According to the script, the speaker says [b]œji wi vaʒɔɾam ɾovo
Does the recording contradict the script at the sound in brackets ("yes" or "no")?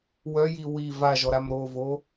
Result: yes